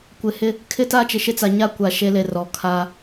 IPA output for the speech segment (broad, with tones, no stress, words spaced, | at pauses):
kʷɪ˨hɪ˦ | kʰɪ˦ta˦ t͡ʃɪ˨ʃɪ˦t͡sa˨ ɲa˦kʷa˨ ʃe˦le˨ rɔ˨ kʰa˦